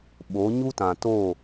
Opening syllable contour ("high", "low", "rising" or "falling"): rising